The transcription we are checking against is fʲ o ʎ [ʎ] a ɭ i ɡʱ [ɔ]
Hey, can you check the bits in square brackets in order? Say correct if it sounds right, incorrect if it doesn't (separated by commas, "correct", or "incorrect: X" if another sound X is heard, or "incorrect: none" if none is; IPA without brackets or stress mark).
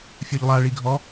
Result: incorrect: lˠ, correct